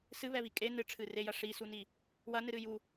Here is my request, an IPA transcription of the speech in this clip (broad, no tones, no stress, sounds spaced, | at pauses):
s ɨ β ɛ β i kʼ e n ɨ ʈ͡ʂʰ ɨ r e j ɐ ʂ i s u n i | w ɐ n ɨ ɾ ɨ j u